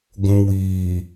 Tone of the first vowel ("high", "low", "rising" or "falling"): low